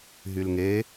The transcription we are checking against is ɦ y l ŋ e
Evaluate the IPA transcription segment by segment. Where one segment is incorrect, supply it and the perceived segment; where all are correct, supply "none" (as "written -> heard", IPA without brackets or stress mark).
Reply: none